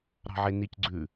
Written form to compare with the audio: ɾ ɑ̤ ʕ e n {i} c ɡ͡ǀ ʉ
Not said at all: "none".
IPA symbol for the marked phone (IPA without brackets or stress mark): i